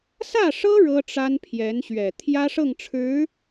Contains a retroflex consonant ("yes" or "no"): yes